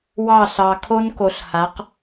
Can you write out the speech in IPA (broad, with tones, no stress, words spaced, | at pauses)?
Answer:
wɑ˦˨ɬɑ˨ kʰo˦nko˨ɬha˨˦q